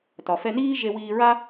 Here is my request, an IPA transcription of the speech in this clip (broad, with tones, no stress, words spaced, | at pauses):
tɒ˩fɛ˧niː˥ ʒe˧wiː˧ɹa˥